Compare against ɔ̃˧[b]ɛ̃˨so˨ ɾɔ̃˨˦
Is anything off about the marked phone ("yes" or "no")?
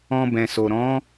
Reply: no